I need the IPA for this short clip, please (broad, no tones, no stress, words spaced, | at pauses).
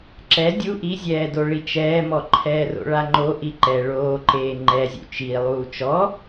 ǁɛ dʲu ʔizʲɛːdo ɭit͡ʃɛːmɔ ǃʰɛːro̰ɭaŋ͡ǃo ʔiǃɛ ɭoːǃeː ŋ͡ǃɛzʲṵ t͡ʃi lˠuːt͡ʃɔ